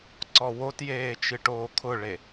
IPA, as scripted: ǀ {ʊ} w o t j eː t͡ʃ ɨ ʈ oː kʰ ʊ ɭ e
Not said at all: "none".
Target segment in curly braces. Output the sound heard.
ɔ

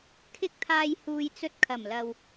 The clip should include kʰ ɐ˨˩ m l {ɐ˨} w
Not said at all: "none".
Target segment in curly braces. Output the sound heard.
ɐ˨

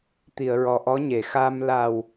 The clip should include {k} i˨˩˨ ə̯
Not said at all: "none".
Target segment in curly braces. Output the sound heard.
t̪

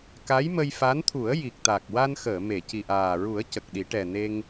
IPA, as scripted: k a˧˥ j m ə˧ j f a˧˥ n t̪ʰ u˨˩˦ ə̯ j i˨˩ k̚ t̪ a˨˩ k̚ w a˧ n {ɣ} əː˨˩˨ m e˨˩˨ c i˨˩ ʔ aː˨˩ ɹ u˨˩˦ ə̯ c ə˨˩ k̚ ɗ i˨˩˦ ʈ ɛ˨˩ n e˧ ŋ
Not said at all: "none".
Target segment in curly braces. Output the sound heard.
x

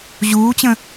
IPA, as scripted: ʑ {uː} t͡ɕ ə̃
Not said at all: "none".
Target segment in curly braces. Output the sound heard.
uː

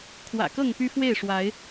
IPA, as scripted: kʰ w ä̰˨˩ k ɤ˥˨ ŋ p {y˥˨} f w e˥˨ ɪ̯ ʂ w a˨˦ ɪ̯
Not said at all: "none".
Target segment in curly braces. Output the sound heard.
y˦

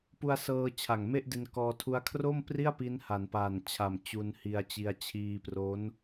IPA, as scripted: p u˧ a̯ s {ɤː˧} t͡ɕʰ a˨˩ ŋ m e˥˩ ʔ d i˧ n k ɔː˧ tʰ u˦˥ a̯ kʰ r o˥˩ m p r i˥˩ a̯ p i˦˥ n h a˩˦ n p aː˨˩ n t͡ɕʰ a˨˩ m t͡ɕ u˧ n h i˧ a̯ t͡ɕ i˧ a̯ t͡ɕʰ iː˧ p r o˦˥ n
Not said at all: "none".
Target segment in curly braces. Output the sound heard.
ɤː˧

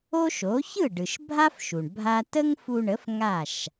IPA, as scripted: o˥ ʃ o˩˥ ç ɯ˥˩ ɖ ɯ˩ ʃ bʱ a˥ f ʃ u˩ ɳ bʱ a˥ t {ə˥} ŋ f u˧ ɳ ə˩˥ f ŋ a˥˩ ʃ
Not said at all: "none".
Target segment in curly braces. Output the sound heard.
ə˥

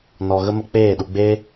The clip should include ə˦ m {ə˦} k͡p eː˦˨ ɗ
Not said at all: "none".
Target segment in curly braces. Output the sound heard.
ə˦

